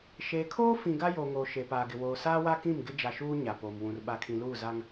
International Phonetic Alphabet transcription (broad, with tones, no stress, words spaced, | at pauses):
ʃeː˨kʰoː˦fĩ˨ ɡa˦joː˨ŋoː˨ ʃe˨paː˨ɡɪ˨ woː˨saː˦wa˦kĩ˦˨m ɡɪ˦d͡ʒa˨ʃuː˦ ɲa˨poː˨mwũ˨r ɓa˨kʰĩ˨luː˦˨za˦ŋ